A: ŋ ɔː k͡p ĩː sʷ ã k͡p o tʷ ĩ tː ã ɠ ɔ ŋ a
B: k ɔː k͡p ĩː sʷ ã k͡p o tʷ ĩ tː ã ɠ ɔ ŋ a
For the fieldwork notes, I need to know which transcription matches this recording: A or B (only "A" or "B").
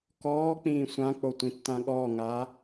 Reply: B